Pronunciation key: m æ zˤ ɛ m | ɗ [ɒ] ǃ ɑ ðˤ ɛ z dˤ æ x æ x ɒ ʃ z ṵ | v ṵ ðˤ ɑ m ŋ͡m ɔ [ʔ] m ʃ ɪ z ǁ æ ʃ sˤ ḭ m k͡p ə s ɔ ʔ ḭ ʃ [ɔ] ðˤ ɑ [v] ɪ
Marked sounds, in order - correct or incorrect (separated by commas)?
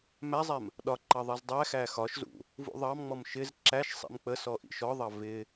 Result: correct, incorrect, correct, correct